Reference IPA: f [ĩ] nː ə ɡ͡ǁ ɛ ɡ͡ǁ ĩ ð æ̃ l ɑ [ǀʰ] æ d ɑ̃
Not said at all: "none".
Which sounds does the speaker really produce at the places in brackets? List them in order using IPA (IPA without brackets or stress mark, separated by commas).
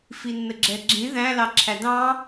i, ǁʰ